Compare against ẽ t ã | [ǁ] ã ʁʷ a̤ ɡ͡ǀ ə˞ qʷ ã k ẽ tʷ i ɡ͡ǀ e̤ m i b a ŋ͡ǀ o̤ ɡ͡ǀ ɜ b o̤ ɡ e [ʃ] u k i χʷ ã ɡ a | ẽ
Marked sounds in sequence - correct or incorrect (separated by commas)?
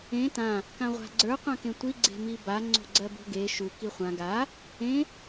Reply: incorrect, correct